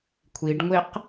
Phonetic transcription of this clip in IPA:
kʷʰiɖŋʷeq

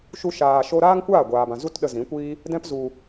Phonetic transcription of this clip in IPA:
ʃu˦ʃaː˧ ʃo˦ ɾaː˦ŋkʷaː˦˨ ɡʷaː˨bã˨ zu˦tɗə˧zĩ˨˦kʷiː˦ | dɛ̃˦pzu˧

